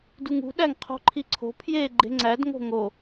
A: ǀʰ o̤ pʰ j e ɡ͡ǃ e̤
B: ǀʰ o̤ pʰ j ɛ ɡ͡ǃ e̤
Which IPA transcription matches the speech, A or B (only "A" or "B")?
A